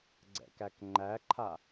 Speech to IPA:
ɡ͡ǀ ɛ̰ k æ k ŋ͡ǃ æ ǃʰ a

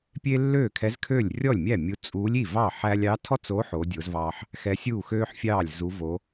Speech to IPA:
pʲ e˥ lː øː˥˩ kʰ ɛ˧˥ z kʰ øː˥˩ lʲ rʲ ɔ˥˩ lʲ mʲ æ˥˩ mʲ u˧˥ t͡sʼ uː˧˥ lʲ i˥˩ v ɑ˥˩ ħ æ˥ lʲ ɑ˧˥ tʰ ɔ˥ t͡s o˧˥ ħ o˧˥ dʲ o˧˥ z v ɑː˥ ħ | x ɛ˧˥ sʲ uː˥˩ x øː˥ ħ fʲ ɑː˥˩ lʲ z u˧˥ v o˧˥

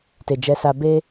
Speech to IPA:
t e˨ d͡ʒ ɛ˨ s a˨ b e˧

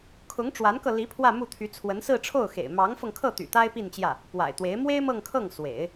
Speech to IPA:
kʰ ʊ˧˥ ŋ ʈ͡ʂ w a˧˥ n k ɤ˧ l i˧˥ pʰ w ä˥˧ m u˥˩ t̪ʰ y˧˥ t͡sʰ w ə˧˥ n s ɹ̩˥˧ ʈ͡ʂʰ o˥˩ ʊ̯ x ḛ˨˩ ɪ̯ m ɑ˧˥ ŋ f ɤ˧ ŋ kʰ ɤ˥˩ t̪ y̰˨˩ t̪ a˥ ɪ̯ p i˥˧ n t͡ɕ j ä˥˩ | p w a̰˨˩ ɪ̯ t̪ w e˧˥ ɪ̯ m w e˥ ɪ̯ m ɤ˥˧ ŋ kʰ ɤ˥˩ ŋ s w ḛ˨˩˦ ɪ̯

